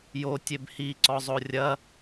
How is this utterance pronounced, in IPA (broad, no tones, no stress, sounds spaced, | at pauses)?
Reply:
j o tʲ e b h i ǀ ɔ zˤ o rʲ ɐ